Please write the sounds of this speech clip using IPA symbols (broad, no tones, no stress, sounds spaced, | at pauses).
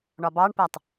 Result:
ɳ ɒ b ɑ ɳ p æ tˤ